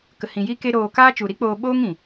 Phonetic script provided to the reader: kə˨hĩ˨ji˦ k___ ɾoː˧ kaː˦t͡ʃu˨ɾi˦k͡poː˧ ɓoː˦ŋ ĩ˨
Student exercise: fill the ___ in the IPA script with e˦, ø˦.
e˦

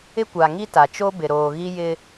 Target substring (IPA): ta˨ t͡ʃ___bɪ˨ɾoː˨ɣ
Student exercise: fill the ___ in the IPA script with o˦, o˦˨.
o˦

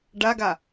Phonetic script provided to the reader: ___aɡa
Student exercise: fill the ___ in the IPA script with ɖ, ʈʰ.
ɖ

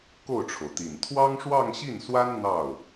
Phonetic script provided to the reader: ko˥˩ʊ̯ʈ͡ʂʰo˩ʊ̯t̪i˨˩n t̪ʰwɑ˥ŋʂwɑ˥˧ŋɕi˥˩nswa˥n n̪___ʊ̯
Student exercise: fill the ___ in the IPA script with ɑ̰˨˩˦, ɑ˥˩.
ɑ˥˩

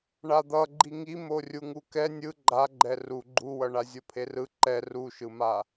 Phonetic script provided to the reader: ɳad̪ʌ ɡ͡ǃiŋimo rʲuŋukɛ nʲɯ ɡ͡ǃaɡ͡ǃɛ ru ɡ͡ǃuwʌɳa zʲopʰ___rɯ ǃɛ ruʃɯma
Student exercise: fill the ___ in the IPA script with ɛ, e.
e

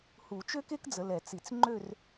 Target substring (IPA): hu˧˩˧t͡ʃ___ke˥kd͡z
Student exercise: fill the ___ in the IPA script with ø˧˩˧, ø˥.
ø˥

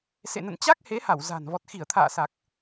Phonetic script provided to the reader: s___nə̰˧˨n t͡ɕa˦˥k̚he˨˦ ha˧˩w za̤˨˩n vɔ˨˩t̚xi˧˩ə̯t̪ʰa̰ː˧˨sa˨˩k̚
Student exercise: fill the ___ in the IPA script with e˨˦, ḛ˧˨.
ḛ˧˨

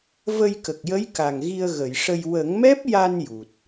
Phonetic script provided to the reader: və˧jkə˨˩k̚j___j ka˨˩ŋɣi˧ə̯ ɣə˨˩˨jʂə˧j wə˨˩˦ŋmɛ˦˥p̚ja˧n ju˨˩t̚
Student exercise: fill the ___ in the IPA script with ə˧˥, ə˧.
ə˧˥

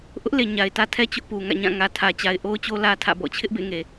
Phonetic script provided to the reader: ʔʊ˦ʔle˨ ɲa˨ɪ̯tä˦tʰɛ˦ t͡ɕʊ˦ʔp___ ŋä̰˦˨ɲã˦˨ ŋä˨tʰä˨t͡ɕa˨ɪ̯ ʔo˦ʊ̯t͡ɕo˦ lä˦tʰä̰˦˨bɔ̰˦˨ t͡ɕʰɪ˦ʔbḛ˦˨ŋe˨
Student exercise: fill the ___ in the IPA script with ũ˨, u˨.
u˨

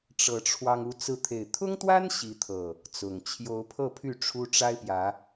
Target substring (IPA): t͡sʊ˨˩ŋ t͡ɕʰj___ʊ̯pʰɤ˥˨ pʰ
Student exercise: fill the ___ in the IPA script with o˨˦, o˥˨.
o˨˦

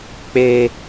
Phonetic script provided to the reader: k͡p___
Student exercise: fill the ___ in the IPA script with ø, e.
e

